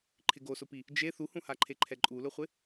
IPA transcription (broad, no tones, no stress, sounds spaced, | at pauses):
ǃʰ ɪ ɡ o s ʊ p i | d͡ʒ e θ u h ũ h a ǃʰ e ǃʰ ɛ ǃʼ u l ʊ χʷ ɪ